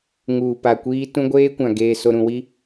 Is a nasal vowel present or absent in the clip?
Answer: present